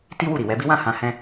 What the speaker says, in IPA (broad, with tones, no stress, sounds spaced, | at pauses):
t i˦ w u˦˨ ɾ i˨ w ɛ˨˦ b i˦ w ã˦˨ h ã˧ h ɛ̃˦